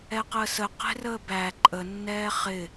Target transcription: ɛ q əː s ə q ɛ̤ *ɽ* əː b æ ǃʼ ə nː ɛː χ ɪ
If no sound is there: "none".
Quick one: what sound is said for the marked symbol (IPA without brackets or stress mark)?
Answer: r